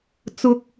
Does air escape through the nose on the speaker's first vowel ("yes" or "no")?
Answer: no